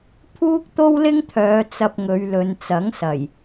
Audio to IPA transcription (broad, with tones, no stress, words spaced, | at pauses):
pʰuː˥k̚t̪o˥wlɪ˥ŋt̪ʰœː˨˧ t͡sɐ˧p̚ŋɵ˨˧ɥlɵ˨˧nt͡sɐ˨˥ŋ sɐ˨˩j